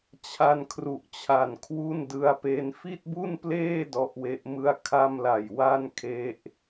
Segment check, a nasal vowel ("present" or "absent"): absent